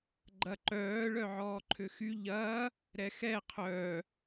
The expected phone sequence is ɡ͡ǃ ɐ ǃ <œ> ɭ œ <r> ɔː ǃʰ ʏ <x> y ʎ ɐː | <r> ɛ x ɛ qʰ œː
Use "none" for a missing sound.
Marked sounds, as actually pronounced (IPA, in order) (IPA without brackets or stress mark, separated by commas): œː, ʕ, x, ɾ